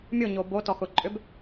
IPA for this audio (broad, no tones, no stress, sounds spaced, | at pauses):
mʲ ʊ ɲ o b o t ɔ x ʊ ǃʼ ʏ b